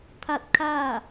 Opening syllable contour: falling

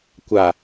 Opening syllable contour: low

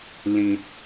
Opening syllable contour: low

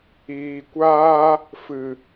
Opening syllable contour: low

